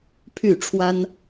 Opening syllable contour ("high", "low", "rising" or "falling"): falling